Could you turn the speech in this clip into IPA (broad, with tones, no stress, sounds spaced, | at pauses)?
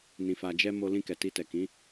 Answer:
n ĩ˨ f a˨ d͡ʒ ɛ˧ m o˧ l ĩ˧ k ɛ˨ t i˧ t ɛ˨ k ĩ˨˦